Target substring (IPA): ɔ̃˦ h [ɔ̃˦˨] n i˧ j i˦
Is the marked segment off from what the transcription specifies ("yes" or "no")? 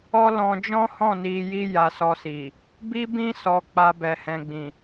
no